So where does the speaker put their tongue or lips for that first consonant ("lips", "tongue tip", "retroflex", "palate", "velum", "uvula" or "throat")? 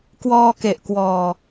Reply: velum